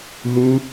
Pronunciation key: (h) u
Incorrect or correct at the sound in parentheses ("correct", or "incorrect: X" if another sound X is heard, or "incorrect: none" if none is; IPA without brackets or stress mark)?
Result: incorrect: ɦ